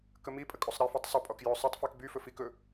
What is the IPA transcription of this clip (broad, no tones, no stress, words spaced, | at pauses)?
kəmipʼə kʼosˤɾɛfitˤ sˤɵpʼɔk jɵ sˤɵtˤfik byfɵ fik ɵ